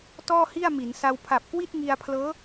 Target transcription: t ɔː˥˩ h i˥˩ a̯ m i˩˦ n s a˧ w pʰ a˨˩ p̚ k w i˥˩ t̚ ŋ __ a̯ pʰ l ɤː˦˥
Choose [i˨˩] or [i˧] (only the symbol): i˧